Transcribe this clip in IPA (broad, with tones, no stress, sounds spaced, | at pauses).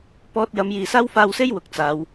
p ɔː˧ t̚ j ɐ˨˥ m j iː˨ s aː˥ w f aː˧ w s e˥ j w ʊ˨ k̚ t͡s aː˨˧ w